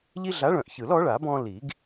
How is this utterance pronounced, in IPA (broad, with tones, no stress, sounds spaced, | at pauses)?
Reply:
ʎ i˦ ɮ a˨˥ ɭ œ̃˨˩ ʔ ç ɯ˨˩˦ l ɔ˨˥ ɭ a˨˩˦ b ɔ̃˦ l i˨˩˦ ɡ